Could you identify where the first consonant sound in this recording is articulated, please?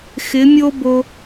velar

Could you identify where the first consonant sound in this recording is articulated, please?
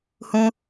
glottal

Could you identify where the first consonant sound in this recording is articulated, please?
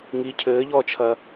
velar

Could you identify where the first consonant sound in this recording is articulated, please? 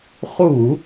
uvular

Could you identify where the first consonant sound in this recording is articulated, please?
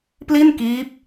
labial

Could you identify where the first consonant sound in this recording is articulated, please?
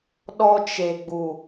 alveolar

